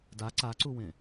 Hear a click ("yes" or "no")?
yes